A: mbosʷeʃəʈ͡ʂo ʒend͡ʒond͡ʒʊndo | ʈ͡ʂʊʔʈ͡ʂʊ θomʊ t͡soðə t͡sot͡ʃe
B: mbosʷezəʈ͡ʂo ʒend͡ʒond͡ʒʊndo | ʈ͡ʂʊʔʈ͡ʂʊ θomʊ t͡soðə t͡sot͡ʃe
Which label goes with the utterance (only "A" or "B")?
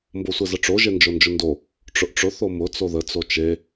B